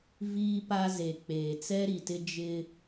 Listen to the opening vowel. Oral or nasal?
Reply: oral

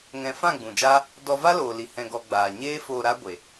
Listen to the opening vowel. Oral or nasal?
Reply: nasal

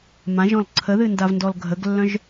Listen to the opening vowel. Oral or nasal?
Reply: nasal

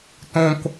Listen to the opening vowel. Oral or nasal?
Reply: nasal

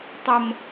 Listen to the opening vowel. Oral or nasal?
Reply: oral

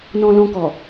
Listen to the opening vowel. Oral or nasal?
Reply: nasal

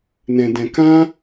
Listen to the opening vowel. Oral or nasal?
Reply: nasal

